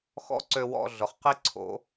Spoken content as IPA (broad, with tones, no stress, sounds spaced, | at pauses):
x ɔ̰˦ ǀ ø˧ w ɔ̰˧ ɮ ʊ˨ χ q i˦ ǀʰ o̰˨˦